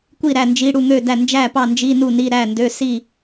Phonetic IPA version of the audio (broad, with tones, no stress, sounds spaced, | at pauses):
kʷ i˥˨ ɾ æ˥˨ n d͡ʒ i˧˥˧ ɽ u˥˨ ŋ ø˥˨ d æ˥˨ n d͡ʒ æ˥˨ p ɑ˥˨ n d͡ʒ i˧˥˧ n u˥˨ n i˧˥˧ ɾ æ˥˨ n d ø˧˥˧ s i˥˨